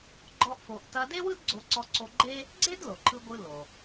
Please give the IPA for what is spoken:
ɡ͡ǃɔ˥ʔfo˧ʔ tɐ˧de˥wɯ˥d ɡ͡ǀo˧ǀɔ˧ǀo˧ɡ͡ǃe˥ | ɡ͡ǀe˥dlo˩ǃʰɯ˧ɡʷɯ˧ lo˩

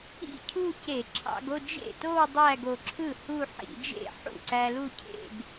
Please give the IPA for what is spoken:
ḭ˥˧cʰu˥˧ce˧˩˧ ǁʰɑ̰˧ɡo˥˧d͡ʒḛ˥˩to˥˧w dˤæ˥˧ɡo˧ǁʰɯ˥˩ hu˥˧ħḭ˧˩˧ d͡ʒḛ˥˩ħṵ˥˩ ǀæ˧lu˥˧cʰḛ˥˧ɡ

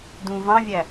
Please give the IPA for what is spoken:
dũ vɑ̃vʲæ

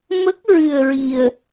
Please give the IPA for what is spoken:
mə˦˥k̚ɹɨ˧ə̯ɹi˧ə̯

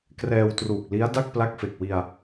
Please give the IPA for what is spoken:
krɛː˧wtruː˨˩k̚li˦˥a̯ da˥˩k̚pla˦˥k̚fe˨˩k̚wi˧a̯

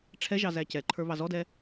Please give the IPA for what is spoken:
ʈ͡ʂʰɛʒɑ zæcɛǃʰə˞ βɑzɔdɛ

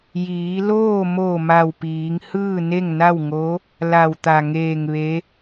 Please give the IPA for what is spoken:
jiː˩˧loː˥˨ mo˧˩ ma˧˩wpiː˩˧ŋ hɯː˥˨ne˥˨ŋna˥˨wŋo˧˥ | la˧˩wt̪a˧˩ ŋeː˧˩ŋ ʋe˧˥

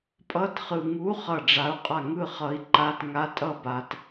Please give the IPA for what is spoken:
pʼʌ˧˥tχɯ˨ ŋu˧˥ χʌ˥˨ɖ͡ʐa˧˥u̯qʼa˥˨ ŋɯ˥˨χʌ˧˥i̯ǃa˧˥˧t ŋa˧˥tʼʌ˥˨ ba˧˥t

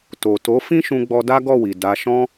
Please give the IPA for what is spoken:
to˨to˨˦ fĩ˦ʃũ˧ɡ͡bɔ˧ da˦ɡɔ˦˨wi˨ da˧ʃɔ̃˦

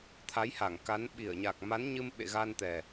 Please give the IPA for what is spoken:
t̪ʰa˨˦jha˧˩ŋka˨˦n ɓi˧˩ə̯ɲa˨˩k̚ ma˨˦nɲɨ˧m ɓḛ˧˨ɣa˧n t̪ɛ˨˩

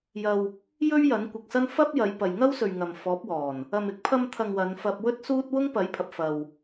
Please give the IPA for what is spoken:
jɐ˧w | jɵ˥ɥjɐ˨˥nkʷɪ˨k̚sɐ˥n fɐ˥p̚jɐ˨˧j pɐ˨jŋɐ˥wsɵ˨ɥ ŋɐ˨mfɔː˨˥p̚wɔː˨˩n | ɐ˨mɪ˧k̚pʰɐ˧mt̪ʰɐ˨ŋ wɐ˨˧nfɐ˧p̚ wɵ˥t̚suː˥t̚ wʊ˥ŋpɐ˨˥jpʰɐ˨p̚ fɐ˨w

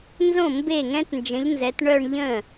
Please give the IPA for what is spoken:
nzõ˥˩ mbe˥˩ŋɛ̃˦˥tnd͡ʒə̃˨˥ʎnzɛ˨˥t ɳœ˥˧ɳʎə̃˥˩

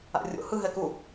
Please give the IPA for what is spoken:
a̰rʲo̰ hɯ ɦɛku

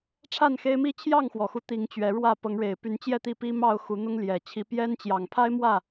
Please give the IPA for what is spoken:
ʈ͡ʂʰa˥˨nxe˦ɪ̯mi˦ t͡ɕʰjɑ˥˨ŋxwɔ˨˩xu˦ t̪i˨˦ŋ t͡ɕɥɛ˨˦ɻwä˥˨ pɤ˨˦ŋɻe˨˩ɪ̯ py˨˦n t͡ɕjɛ˥˨t̪i˥˨pi˦mɑ˥˨ʊ̯ xu˨˦n̪ʊ˦ŋljɛ˨˩ t͡ɕʰi˨˦pjɛ˦nt͡ɕjɑ˨˩ŋ pʰa˦ɪ̯mwä˥˨

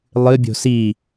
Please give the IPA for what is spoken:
lˠɨ bʲo̤si

